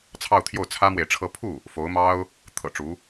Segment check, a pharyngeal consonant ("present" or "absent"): absent